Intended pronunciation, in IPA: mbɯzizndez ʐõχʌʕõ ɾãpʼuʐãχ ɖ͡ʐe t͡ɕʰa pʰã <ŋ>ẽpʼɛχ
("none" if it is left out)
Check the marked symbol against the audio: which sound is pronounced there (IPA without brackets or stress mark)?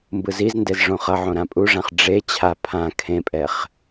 kʰ